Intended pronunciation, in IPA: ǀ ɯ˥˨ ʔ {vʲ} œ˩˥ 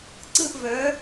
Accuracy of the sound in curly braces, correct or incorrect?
incorrect